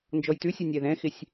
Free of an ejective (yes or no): yes